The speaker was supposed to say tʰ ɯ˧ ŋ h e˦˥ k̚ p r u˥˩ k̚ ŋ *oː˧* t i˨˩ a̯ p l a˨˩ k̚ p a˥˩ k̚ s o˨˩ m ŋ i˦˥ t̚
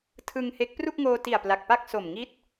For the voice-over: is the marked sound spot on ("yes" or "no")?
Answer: yes